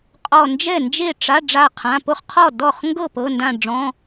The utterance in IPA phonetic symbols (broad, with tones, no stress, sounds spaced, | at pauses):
qʼ ɔ˧˩ n d͡ʒ ɛ˥˩ n d͡ʒ e˥˩ ʈ͡ʂ a˩˧˩ ɖ͡ʐ a˧˩ qʰ ã˩˧˩ p o˥˩ χ qʰ ɔ˥˩ d ɔ˥˩ χ ŋ ɡ ɤ˥˩ p ɤ˩˧˩ n d ã˧˩ ɖ͡ʐ ɔ̃˩˧˩